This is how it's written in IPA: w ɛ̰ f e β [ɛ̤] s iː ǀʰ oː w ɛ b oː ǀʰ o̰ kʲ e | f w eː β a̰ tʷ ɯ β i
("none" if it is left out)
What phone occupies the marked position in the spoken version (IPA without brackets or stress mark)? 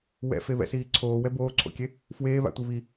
ɛ̰